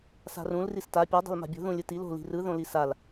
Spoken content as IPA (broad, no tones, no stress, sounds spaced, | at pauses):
s a̤ r ũ l r i s t a pʲ ɤ dˤ i̤ l m a̤ bʲ o̤ ð ũ lʲ ɯ t i l o̤ l i̤ r ɯ ð õ l i s a l